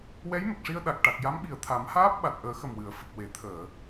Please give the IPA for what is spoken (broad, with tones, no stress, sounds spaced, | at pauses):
w ɛ˧˥ j m ə˨˩ k̚ ʂ i˧ ə̯ ɗ a˨˩ k̚ ʈ a˨˩ k̚ j a˧˥ m ɓ i˨˩ ə̯ t̪ʰ a˨˩˦ m h aː˦˥ p̚ ɓ a˨˩ t̚ ʔ əː˨˩˦ x ə˨˩ m w ɨ˨˩˨ ə̯ f ə˨˩ k̚ w e˨˩˨ t̪ʰ əː˨˩˨